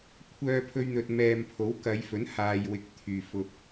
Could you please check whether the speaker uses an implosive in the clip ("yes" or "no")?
no